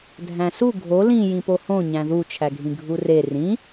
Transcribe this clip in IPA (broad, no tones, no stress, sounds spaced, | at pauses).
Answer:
dʱ æ̃ s u ɡʱ o l ĩ j ĩ p o h õ ɲ æ̃ ð u t͡ʃʰ æ ɡʱ ĩ ɡʱ u r e r ĩ